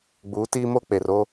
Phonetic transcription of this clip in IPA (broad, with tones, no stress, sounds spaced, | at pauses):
ɡ͡b uː˨˦ t iː˦ m o˦ k͡p e˨ r o˦